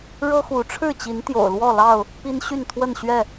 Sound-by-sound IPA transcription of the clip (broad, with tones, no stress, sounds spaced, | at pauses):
ɻ ɤ˦ x u˨˦ ʈ͡ʂʰ ɻ̩˥˨ t͡ɕ i˨˦ n t̪ j o̰˨˩ ʊ̯ l w ɔ˥˨ l ɑ˥˨ ʊ̯ | p i˦ n ɕ y˥˨ n t̪ʰ w ə˥˨ n ɕ ɥ ɛ˥˨